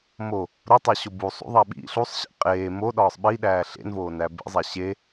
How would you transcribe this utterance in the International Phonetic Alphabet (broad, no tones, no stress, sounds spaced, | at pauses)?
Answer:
m o | ɾ o tˤ æ ɕ o b u sˤ ṵ ðˤ æ ɓ ḭ ɬ u sˤ ɕ ḭ qʼ eː m o ɗ ɒː sˤ ɓ i ɗ æː ɬ ḛ n v oː n æ b ḛ zˤ æ ɕ e